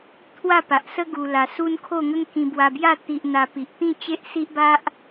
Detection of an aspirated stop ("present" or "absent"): present